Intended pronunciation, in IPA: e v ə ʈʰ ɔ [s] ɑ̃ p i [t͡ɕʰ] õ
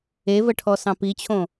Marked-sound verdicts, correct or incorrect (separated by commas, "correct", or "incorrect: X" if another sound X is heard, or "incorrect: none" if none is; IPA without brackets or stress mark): correct, correct